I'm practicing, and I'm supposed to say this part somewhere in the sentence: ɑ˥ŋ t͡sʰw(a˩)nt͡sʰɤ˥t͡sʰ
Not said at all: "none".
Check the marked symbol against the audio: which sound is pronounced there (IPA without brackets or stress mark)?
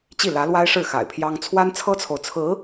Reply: a˥